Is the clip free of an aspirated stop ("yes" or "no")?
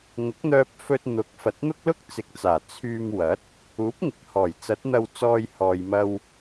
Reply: no